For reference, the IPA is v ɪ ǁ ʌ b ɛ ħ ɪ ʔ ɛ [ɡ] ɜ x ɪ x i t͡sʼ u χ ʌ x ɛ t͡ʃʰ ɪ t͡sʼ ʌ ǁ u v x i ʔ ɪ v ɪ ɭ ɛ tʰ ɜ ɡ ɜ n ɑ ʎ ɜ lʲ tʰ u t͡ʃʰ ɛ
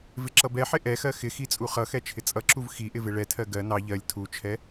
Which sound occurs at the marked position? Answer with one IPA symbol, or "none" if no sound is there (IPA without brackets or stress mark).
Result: x